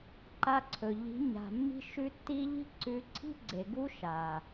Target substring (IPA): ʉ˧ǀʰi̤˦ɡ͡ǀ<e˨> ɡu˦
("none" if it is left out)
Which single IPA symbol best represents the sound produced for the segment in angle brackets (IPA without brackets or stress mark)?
e˨